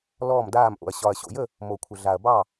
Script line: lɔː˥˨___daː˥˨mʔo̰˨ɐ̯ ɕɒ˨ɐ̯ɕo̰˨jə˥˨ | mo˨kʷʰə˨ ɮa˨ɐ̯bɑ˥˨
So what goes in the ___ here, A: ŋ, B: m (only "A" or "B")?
B